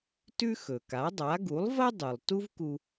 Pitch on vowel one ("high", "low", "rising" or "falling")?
high